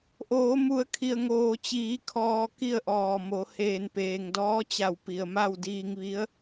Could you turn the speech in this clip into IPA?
ʔ oː˩˧ m u˩˧ ə̯ kʰ i˩ ə̯ ŋ oː˩ t͡ɕ iː˩˧ kʰ ɔː˧ k i˥˨ ə̯ ʔ ɔː˧˩ m o˩˧ h eː˧˩ n p eː˩ ŋ d ɔː˧˥ t͡ɕ a˧˩ w p i˩ ə̯ m a˥˨ w d iː˧ ŋ ʋ i˧˥ ə̯

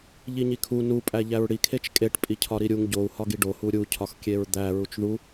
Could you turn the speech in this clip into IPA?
ʎ i ɲ i kʰ u n u pʼ æ ʎ æ ɹ ɽ i kʰ e t͡ʃ kʼ e ʈ pʼ i cʰ ɒ ɾ i ɾʲ u ŋ ɟ o u̯ h ɒ ɡ i ɖ o h u ɾʲ u cʰ ɒ x kʲ e ɹ d̪ æ ɹ u t͡ʃ ð u

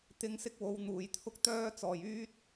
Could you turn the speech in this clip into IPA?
t̪ ɪ˧ ŋ s ɪ˥ k̚ w o˨˧ w n̪ uː˨ j t̪ʰ ʊ˥ k̚ t̪ œː˥ t͡s ɔː˨˩ j yː˥ t̚

